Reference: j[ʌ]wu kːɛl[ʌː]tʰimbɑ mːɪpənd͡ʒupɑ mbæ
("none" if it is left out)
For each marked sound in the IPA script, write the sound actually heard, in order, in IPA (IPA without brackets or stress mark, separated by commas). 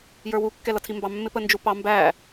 ə˞, ʌ